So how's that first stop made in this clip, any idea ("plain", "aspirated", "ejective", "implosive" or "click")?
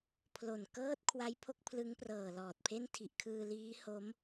aspirated